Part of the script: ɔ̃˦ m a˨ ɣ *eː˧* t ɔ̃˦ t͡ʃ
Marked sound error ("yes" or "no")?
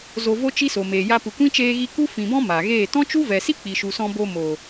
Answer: yes